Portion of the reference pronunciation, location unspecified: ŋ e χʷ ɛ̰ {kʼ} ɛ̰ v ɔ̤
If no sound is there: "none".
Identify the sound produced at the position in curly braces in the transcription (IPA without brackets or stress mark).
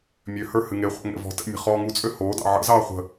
ŋ